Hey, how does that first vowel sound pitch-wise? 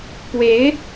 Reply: rising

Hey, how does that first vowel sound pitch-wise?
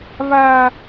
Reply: high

